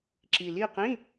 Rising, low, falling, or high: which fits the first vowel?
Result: low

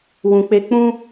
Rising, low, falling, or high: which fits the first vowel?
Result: low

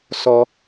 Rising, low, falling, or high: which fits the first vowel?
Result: low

